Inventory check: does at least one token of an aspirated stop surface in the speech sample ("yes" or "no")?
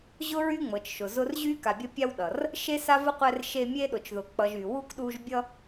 no